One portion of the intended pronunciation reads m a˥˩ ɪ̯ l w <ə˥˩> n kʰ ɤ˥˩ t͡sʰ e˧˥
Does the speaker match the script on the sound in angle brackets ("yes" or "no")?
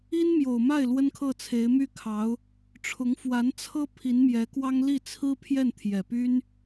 no